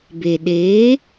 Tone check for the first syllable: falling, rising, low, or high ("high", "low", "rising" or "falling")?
low